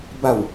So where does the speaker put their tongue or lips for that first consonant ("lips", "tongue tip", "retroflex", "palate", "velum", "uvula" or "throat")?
lips